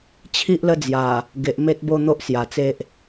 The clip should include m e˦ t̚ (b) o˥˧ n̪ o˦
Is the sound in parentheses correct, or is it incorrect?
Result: correct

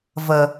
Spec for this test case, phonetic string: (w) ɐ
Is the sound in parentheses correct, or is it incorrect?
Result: incorrect: v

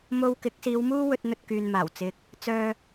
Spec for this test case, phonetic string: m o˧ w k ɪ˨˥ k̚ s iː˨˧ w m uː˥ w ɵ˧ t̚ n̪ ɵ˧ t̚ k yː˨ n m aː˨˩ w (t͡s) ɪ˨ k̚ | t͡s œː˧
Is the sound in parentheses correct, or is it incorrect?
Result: correct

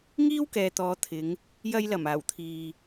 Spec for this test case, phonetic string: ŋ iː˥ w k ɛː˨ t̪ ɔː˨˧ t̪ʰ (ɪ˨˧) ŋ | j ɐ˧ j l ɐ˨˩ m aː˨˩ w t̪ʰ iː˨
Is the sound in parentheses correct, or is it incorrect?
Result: correct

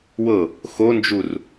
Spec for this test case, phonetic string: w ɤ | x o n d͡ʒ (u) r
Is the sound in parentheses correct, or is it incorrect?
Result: correct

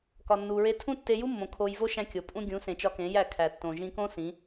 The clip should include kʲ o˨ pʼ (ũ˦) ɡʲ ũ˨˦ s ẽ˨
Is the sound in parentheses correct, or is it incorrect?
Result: correct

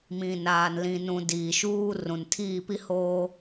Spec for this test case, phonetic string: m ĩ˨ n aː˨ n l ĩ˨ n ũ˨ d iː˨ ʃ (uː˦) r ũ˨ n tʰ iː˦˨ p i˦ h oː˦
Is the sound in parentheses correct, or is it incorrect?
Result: correct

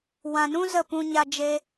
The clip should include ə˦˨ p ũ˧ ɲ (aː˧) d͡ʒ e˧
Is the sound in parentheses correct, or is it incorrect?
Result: incorrect: a˧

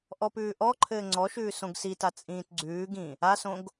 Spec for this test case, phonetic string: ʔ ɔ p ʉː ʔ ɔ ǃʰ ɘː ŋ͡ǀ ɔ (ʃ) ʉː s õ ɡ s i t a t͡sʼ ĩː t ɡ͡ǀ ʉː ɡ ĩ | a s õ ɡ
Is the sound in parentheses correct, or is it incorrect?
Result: correct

